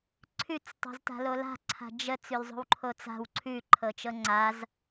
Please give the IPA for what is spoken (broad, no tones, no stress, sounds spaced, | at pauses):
ǀʰ ʉ t͡s tˤ o̤ z t a̤ l o l a̤ ǀʰ a̤ d͡ʒ ə t͡s ʉ l zˤ o̤ w ǃʰ o t͡s a̤ w ǀʰ ʉ ǃʰ ɤ t͡ʃ ɤ ŋ͡ǀ a z